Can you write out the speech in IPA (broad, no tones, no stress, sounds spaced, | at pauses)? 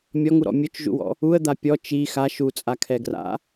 mʲ ɔ ŋ u ɾ ɔ̰ mʲ ɵ t͡ʃ ʒ ṵ w ɔ̰ | u ə̯ d̪ a pʲ ɔ t͡ʃ i x a ʃ u t͡sʼ a kʰ ɛ ɡ r a̰